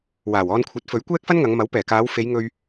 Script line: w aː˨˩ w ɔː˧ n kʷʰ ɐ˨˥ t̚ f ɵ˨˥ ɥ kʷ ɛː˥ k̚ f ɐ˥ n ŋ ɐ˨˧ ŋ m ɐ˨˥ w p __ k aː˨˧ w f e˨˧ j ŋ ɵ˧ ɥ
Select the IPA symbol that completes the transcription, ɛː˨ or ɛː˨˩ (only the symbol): ɛː˨˩